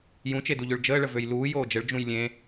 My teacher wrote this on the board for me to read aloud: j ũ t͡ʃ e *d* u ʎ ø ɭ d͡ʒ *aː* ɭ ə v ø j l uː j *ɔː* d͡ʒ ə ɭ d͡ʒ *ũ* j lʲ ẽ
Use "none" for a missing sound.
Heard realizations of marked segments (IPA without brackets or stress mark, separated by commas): d, əː, oː, ũ